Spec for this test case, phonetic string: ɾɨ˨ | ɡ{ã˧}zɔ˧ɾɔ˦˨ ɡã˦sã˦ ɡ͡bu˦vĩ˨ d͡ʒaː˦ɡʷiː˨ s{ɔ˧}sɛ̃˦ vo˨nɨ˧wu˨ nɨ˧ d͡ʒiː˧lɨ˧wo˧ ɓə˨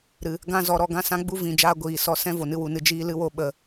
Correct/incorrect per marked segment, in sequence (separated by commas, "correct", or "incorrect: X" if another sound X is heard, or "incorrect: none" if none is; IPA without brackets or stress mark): incorrect: ã˦, correct